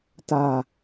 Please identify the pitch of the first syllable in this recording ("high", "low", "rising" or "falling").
low